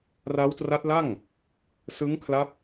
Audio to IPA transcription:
ra˦˥wtra˦˥t̚la˥˩ŋ | sɯ˦˥ŋkʰla˦˥p̚

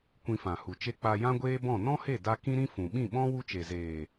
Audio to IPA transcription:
kʷĩ˧fã˨hu˨t͡ʃe˦ k͡pa˧jã˦ɡʷeː˦bɔ̃˦˨ nɔ̃˦he˦˨da˧ kĩ˦ɾĩ˦ fũ˨ ɓĩ˦˨ɓɔ̃˦ wu˦t͡ʃe˨ zeː˨

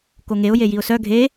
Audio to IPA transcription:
koŋeʊ̯ jejiʊ̯sœ ɡʱe

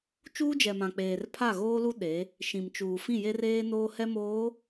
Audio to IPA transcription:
t͡ʃuː˦d͡ʒɛ˨mã˨ k͡peː˨rpʰa˦˨ɣoː˦lu˦ ɗe˨˦ | ʃĩ˨m t͡ʃuː˨ fĩ˦˨je˦reː˦ noː˦hɛ˦moː˨˦

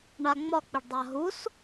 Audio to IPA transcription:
ɳaŋ͡mɒk͡piɖdˤa ɦus

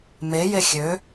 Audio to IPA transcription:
meje xʲø

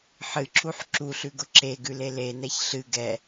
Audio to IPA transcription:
ħɨǁuħ ǁuɬʉɡʊ ǁeɡʉle lenɛç ɬɨ ɡɛ

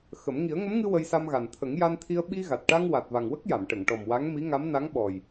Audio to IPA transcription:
xə˨˩˦m ŋi˨˩˦ə̯ŋə˧˥mŋɨ˧ wə˧jsa˧mɣa˨˩n t̪ʰə˨˩˦ŋja˧nt̪ʰi˧ə̯ ɓi˧ɣa˨˩t̚ʈa˧ŋ wa˨˩t̚va˨˩ŋwə˦˥k̚ ja˨˩˨mʈə˨˩˨ŋ ʈɔ˨˩m wa˧˥ŋmi˧˥ŋa˧˥m na˧˥ŋɓɔ˨˩j

